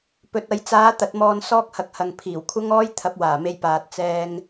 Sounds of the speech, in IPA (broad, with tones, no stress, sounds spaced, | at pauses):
p ɵ˨ t̚ ɐ˨ j t͡s aː˨˥ t̪ ɐ˨˥ t̚ m ɔː˧ n s ɔː˥ k̚ h ɐ˧ k̚ h ɐ˨ ŋ pʰ iː˨˩ w kʷʰ ɐ˥ ŋ ɔː˥ j t̪ʰ ɐ˨˥ p̚ w aː˨˩ m e˧ j p aː˨ t̚ t͡s ɛː˧ ŋ